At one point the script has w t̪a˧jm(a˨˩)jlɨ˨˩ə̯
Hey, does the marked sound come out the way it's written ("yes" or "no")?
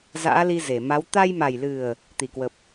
yes